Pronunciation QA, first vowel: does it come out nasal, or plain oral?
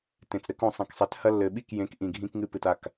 nasal